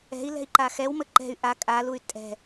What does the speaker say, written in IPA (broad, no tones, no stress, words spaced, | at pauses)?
ɛ̤i̯lɛ̤i̯ ǃaxɛwmə ǃɛ̤y̯ ʔa kʼaluy̯ tʼɛ̤